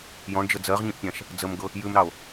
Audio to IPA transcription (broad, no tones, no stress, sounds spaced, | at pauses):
j ɔ̃ ɳ d͡ʒ ə d͡z ɜ ʁ ɲ ĩ ʔ pʲ ã ʃ | d͡z ə m ɡ ɤ | j ʉ m ɾ ɑ o̯